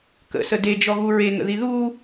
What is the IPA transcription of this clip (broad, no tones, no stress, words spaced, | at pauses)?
kə̰sə ded͡ʒɔɣu ɹeŋə̰ði ðu